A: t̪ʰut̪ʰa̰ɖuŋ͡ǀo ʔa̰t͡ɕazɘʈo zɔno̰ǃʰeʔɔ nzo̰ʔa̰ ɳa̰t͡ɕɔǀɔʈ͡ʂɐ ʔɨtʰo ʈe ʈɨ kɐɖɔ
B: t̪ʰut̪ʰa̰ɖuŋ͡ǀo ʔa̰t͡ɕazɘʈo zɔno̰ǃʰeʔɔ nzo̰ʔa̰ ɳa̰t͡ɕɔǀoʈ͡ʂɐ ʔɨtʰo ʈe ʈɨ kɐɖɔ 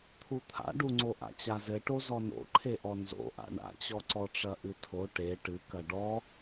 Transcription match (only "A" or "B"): A